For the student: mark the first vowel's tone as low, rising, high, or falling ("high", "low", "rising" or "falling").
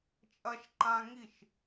high